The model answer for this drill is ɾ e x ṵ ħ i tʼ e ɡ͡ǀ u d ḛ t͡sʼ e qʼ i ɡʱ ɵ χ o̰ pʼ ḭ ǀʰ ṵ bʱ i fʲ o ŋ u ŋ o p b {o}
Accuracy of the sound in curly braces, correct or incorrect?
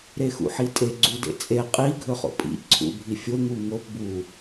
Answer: incorrect